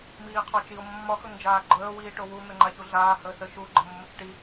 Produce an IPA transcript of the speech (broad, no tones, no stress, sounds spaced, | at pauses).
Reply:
m iː qʰ ɒ t͡ʃ i o̯ mː ɒ x ɵ ŋ d͡ʒ aː ɡ͡ǃ əː w iː ʈ o w u n̪ ə ŋ͡ǃ a ç u ɮ aː h əː s ə ʃ u ɡ͡ǃ ə mː ə t͡s ʈ i